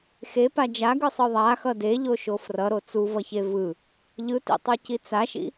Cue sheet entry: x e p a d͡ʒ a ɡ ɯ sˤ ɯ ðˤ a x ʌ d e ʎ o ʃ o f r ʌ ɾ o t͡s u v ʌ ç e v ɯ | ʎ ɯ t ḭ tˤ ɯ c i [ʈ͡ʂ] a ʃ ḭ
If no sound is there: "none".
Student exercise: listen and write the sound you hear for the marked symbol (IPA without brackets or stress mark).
t͡s